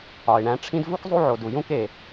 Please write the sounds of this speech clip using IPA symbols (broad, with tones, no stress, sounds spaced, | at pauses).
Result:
ɒ˨ ɪ̯ ɳ æ̃˦ ʈ͡ʂʰ ĩ˦ d v u˥ k zˤ u˦ ʕ o˨ d u˨ j ũ˦ k e˩